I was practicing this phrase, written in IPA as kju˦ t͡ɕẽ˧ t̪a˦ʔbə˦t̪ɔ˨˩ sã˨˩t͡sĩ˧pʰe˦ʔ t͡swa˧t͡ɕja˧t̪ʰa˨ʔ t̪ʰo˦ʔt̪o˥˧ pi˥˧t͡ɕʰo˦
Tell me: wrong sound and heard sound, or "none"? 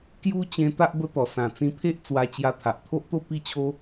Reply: none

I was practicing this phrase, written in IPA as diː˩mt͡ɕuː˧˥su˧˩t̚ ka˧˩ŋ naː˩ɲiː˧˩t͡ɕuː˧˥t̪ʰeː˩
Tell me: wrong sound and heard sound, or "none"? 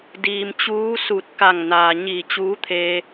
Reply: eː˩ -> eː˧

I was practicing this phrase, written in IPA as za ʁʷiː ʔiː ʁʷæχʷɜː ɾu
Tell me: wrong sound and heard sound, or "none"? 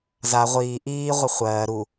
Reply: æ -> ə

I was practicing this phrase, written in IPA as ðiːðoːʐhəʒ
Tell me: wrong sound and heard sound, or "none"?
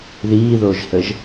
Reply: ʐ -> ʒ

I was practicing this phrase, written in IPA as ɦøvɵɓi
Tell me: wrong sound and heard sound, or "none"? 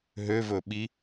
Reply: none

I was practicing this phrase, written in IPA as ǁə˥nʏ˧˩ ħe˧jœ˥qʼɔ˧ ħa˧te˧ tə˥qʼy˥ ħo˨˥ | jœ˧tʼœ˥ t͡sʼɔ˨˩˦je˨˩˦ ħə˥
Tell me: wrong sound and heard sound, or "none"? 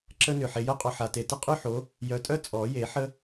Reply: none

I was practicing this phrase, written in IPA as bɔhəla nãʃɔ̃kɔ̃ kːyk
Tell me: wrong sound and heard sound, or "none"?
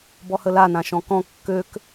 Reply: y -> ø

